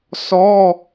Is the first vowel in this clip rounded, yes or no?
yes